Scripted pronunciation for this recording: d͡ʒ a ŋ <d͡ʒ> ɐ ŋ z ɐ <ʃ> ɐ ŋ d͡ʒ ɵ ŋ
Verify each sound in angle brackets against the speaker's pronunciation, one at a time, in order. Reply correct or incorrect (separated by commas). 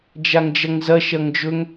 correct, correct